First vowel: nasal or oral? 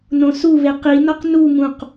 nasal